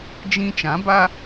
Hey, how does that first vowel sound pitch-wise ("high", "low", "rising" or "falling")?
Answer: high